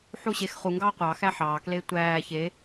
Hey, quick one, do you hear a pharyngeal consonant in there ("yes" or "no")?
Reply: yes